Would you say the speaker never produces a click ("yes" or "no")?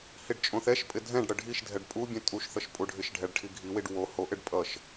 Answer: yes